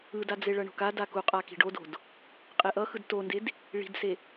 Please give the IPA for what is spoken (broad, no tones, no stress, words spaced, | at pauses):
ɯdad͡ze ɭʌɳo̤kada kuqʼa ki̤ɖodo̤d | qʼeʔʌ xɯdtonded | ɭi̤dse